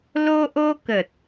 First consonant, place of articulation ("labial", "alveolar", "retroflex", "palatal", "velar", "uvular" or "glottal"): alveolar